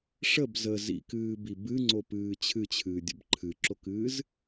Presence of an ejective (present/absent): absent